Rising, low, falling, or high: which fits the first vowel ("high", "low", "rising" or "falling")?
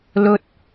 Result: high